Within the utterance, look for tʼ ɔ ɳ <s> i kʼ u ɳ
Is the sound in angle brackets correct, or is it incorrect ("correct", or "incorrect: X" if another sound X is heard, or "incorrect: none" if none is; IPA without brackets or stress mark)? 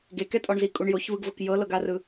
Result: incorrect: z